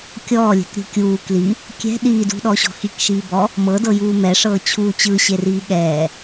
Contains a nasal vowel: no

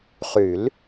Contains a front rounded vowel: yes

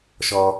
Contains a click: no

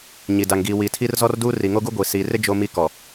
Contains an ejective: no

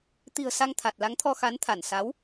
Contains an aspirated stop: yes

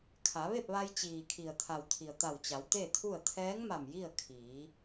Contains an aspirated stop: yes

